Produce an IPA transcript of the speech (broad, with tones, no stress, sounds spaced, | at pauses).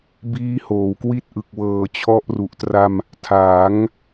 b iː˦˥ h oː˩˦ w k w i˥˩ t̚ ʔ ɯ˨˩ k̚ w ɤː˨˩ t͡ɕʰ ɔ˦˥ ʔ r u˨˩ ʔ t r a˧ m | tʰ aː˩˦ ŋ